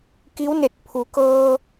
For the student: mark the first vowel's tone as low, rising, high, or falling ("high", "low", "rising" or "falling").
rising